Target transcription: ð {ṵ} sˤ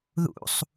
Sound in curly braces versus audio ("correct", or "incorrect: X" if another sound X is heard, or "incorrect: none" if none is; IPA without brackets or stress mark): correct